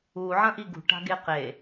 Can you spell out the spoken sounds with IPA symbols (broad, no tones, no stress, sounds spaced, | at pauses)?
u ʕ ɐ̃ ʔ i ɡ ṳ ʈ a̤ ɡ e q e